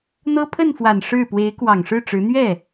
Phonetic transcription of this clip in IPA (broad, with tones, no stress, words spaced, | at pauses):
n̪ɤ˥ pʰə˥˩nfwa˨˩n ʂɻ̩˥˩ pwe˧˥ɪ̯kwɑ˨˩ŋʂɻ̩˥˩ʈ͡ʂɻ̩˧˥ n̪ɥɛ˥˩